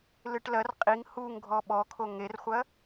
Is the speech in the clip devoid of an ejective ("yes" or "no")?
no